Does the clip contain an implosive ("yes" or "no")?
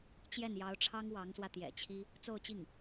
no